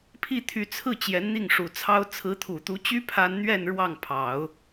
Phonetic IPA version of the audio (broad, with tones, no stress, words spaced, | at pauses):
pʰi˥˩t̪ʰy˧˥t͡sʰɹ̩˥˩ t͡ɕjɛ˧˥nn̪i˥˩ŋʂu˨˩t͡sʰɑ˥ʊ̯ t͡sʰɹ̩˧˥t̪ʰu˨˩t̪u˧˥t͡ɕy˥ pʰa˥n n̪ɥɛ˥˧n ɻwɑ˥˩ŋpʰɑ˨˩˦ʊ̯